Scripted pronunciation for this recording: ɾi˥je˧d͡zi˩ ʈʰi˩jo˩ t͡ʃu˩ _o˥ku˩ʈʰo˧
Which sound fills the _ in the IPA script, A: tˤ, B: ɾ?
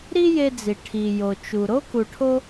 B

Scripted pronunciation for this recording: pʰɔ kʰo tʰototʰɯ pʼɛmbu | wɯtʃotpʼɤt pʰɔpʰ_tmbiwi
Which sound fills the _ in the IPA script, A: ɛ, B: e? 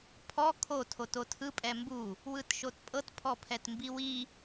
A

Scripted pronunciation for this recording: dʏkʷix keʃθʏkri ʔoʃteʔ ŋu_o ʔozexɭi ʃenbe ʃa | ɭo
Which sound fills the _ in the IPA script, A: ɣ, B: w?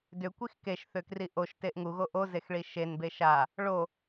A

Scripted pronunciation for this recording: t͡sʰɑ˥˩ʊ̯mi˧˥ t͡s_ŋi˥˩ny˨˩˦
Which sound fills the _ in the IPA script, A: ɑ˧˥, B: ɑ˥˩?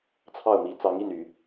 A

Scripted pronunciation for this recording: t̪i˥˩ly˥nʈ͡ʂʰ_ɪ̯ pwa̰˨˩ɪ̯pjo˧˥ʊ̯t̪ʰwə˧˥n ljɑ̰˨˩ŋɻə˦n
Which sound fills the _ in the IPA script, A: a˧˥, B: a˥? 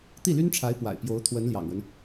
A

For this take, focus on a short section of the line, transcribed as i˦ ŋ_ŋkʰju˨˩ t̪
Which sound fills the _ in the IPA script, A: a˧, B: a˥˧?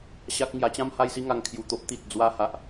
A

